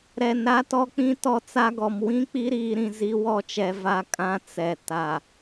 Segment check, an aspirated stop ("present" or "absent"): absent